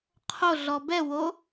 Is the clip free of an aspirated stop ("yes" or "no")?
no